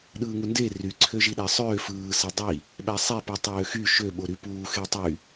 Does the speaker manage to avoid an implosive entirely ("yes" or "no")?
no